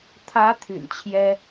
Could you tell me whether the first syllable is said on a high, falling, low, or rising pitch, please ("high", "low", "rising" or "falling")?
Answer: rising